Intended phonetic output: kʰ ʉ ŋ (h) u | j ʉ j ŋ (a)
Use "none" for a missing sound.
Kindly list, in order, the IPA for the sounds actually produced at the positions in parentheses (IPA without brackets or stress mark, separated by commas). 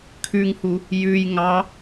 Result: h, ɑ